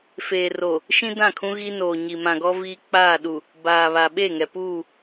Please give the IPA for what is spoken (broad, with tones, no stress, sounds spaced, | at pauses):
f eː˨ r o˨ | ʃ ĩ˦ d ã˦˨ kʰ ũ˦ ɣ i˦ n oː˨ ɲ i˨ m ã˨ ɡ ɔ˦ v iː˦ k͡p aː˦˨ ɗ u˨ | b aː˨ β a˨ ɓ e˦˨ ŋ ɛ˨ p uː˦˨